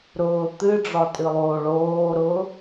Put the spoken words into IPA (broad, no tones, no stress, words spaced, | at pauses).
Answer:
ɾʊː t̪ɨɖ͡ʐɒ tʼɨlˠoːɭoːɾʊː